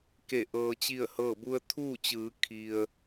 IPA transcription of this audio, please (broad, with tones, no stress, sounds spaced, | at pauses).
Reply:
k e˧˩ ʔ ɤː˧ t͡ɕ i˥˨ ə̯ h ɤː˥˨ b u˧ ə̯ t̪ʰ uː˥˨ t͡ɕ ɯː˩˧ kʰ i˩ ə̯